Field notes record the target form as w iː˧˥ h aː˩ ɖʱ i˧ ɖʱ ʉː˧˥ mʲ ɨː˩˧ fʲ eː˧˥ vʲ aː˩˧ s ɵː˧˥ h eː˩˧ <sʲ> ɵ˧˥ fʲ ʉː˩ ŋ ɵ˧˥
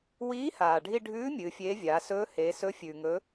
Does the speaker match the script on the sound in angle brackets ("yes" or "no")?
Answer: no